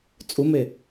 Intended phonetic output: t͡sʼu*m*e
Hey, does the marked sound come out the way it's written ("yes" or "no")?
yes